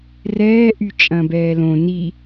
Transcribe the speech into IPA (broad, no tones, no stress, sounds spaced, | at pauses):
r ɛː ʔ y t͡ʃʼ ɐ̃ː b ɛː l õ n i